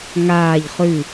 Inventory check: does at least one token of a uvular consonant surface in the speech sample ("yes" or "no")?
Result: yes